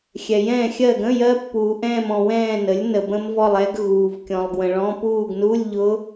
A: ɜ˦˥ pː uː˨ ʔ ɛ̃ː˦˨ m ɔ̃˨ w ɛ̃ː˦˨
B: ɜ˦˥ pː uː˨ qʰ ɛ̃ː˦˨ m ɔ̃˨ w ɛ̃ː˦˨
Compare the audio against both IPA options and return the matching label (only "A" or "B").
A